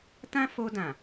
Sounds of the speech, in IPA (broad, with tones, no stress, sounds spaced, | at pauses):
t ã˦ f o˧ d ã˨